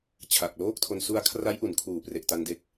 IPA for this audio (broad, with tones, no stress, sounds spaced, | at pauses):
t͡ɕʰ a˨˩ k̚ l oː˥˩ k̚ tʰ o˧ n s u˧ a̯ kʰ r a˦˥ j ʔ u˩˦ n kʰ uː˨˩ p r e˨˩ ʔ t a˧ n d e˦˥ k̚